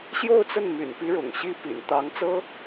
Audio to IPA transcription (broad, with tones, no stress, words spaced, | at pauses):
ɕjo˥˧ʊ̯t͡sə˥˩n my̰˨˩npi˧˥ ɻʊ̰˨˩ŋɕi˥˩ pḭ˨˩nt̪ɑ˧˥ŋt͡sɤ˥